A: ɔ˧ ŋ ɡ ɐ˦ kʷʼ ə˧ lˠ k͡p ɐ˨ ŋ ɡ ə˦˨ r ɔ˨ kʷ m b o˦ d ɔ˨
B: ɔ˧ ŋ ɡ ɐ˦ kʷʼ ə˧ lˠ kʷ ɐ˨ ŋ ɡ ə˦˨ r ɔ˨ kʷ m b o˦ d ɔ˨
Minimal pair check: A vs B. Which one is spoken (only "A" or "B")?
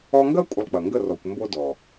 A